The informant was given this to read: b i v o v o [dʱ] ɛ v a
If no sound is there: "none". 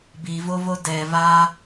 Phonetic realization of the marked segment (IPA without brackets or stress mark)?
d